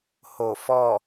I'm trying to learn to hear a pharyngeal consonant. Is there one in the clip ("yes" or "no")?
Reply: no